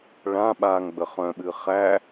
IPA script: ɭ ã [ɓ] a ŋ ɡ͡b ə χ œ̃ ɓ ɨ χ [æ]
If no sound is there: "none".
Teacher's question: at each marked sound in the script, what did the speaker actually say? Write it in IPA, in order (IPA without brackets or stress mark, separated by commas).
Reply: ɓ, æ